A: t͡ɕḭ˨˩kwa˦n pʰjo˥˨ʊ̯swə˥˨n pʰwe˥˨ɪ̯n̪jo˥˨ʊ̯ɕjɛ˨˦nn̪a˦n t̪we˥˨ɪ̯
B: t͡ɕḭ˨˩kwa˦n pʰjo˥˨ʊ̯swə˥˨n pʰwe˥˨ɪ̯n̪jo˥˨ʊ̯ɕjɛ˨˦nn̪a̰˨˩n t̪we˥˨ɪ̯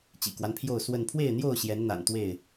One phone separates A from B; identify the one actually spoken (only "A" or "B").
B